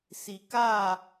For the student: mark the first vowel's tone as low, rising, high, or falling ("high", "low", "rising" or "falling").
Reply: low